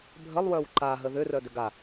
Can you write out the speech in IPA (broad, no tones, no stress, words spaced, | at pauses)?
bʱəlˠwœw ǃaɦə ðʏ rœdʏɡa